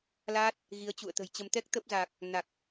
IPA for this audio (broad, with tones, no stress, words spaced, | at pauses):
laː˦˥t̚ | ɣi˨˦ə̯t͡ɕṵ˧˨ə̯t̪ə̤˨˩jt͡ɕə˧m t̪ɛ˦˥k̚t̪ə˦˥p̚za˨˩k̚ | na˨˩k̚